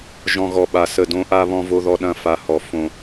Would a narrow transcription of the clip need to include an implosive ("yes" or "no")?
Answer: yes